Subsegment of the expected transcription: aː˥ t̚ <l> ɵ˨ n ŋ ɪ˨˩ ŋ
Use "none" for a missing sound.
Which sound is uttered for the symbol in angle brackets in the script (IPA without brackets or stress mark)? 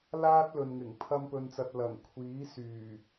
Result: l